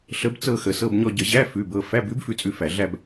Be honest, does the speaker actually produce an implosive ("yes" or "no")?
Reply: no